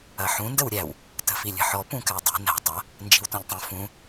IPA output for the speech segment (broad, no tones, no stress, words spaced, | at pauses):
ɐħũ ndəwɾʲæw | tə̤filʲə̤ħɔ pũkædˤi̤ næ̤ tˤɐ | nd͡ʒi̤wtɔ̃ʎtˤũ fũ